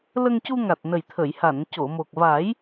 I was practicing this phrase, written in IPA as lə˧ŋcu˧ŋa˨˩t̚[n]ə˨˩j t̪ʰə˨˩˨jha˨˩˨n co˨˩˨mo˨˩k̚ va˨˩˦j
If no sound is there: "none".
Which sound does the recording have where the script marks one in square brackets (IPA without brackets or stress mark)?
n